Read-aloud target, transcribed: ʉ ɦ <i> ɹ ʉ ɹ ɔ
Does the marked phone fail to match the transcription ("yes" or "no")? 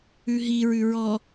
no